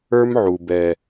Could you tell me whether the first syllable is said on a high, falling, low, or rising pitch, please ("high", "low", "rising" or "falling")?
high